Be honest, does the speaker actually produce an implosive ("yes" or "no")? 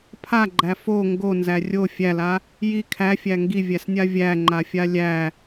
no